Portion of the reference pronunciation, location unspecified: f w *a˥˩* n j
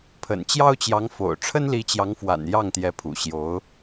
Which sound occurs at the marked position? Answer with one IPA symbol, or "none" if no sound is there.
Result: a̰˨˩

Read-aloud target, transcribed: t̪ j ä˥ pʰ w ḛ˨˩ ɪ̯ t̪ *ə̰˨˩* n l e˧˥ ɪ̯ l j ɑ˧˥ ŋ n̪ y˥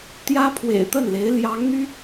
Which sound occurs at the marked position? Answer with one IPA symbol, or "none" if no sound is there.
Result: ə˥˩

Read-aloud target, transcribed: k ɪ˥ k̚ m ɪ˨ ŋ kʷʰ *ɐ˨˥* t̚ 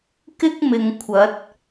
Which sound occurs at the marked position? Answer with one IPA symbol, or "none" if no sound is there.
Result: ɐ˨˥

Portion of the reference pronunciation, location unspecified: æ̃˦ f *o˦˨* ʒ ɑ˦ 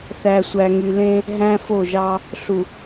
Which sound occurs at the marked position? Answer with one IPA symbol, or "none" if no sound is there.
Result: o˦˨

